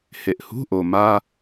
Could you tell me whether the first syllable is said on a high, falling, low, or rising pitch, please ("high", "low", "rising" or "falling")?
low